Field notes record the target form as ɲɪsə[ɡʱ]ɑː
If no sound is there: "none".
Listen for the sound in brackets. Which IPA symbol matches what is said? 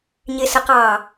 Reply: q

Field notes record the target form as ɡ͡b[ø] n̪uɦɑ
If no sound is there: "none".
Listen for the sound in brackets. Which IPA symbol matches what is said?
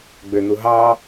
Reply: ø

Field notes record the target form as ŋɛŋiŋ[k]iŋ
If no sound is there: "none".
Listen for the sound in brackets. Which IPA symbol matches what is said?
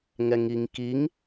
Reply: k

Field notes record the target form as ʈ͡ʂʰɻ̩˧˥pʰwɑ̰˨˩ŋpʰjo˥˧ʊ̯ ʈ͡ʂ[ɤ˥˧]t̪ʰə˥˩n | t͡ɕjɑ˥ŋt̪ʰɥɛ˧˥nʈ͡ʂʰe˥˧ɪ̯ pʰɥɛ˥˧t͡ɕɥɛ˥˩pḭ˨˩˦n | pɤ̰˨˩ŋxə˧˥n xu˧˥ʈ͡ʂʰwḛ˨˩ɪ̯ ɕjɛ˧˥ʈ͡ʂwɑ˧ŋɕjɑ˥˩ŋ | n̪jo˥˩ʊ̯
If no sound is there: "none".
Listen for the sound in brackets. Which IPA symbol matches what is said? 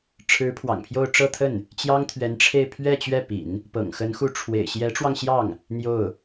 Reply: ɤ˥˧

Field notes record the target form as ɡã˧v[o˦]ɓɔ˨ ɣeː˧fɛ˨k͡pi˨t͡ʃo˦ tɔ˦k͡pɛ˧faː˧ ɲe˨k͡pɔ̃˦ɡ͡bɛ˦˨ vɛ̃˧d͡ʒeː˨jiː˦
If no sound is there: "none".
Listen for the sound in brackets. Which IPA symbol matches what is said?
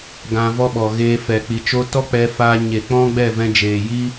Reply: ɔ˦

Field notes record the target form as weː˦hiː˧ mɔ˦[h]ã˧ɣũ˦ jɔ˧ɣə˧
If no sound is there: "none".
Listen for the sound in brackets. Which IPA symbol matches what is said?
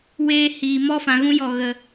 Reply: f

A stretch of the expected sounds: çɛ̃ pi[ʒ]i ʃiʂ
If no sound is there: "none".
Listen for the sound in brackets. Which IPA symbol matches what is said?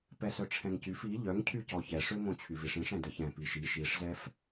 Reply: ʃ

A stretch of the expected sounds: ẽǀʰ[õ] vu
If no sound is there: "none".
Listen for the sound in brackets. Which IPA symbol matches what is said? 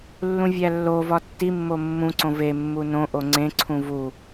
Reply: ũ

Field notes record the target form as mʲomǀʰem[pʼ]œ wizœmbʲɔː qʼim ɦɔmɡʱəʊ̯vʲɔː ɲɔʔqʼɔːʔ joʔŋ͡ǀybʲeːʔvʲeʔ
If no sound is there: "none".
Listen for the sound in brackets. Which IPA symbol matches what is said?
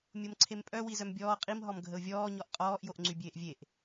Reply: pʼ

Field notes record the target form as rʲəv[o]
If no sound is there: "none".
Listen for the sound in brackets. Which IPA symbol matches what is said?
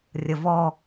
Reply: ɔ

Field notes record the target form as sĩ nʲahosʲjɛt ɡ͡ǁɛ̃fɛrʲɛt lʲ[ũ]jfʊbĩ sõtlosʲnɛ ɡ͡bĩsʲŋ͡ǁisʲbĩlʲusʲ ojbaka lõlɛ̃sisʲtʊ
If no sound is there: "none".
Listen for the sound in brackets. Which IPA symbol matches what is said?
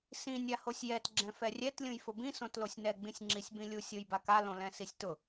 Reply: ũ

